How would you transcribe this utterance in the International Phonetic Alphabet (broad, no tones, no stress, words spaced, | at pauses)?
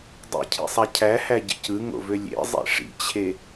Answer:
dˤḭcʰḭsˤæ cʰæhæɟḭc ɯŋo̰vø lʲḛzˤḭ ʂḭt͡ɕʰe